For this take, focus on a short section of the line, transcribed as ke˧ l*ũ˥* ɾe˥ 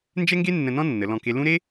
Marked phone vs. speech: correct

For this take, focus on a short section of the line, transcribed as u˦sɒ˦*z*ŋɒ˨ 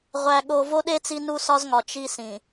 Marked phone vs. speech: correct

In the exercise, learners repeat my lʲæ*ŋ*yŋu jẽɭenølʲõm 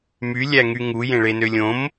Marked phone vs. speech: correct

